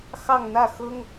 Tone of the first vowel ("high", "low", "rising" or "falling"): falling